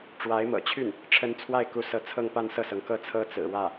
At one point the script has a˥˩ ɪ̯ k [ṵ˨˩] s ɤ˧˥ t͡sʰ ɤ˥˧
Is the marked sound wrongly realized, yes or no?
yes